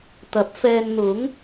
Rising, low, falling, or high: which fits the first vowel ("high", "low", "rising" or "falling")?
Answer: rising